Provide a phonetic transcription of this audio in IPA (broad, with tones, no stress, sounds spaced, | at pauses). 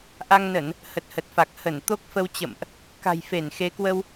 ʔ a˧ ŋ n ə˧˩˨ n | h ə˨˩ t̚ h ə˨˩ t̚ f a˨˩ k̚ h ə˧˩ n t̪ o˦˥ k̚ f ə˧ w t͡ɕ ə̰˧˨ m ʔ | k a̤˨˩ j f e˧˩ n x e˨˦ k w ə˧ w